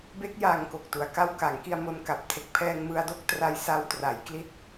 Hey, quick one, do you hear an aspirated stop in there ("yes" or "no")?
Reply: yes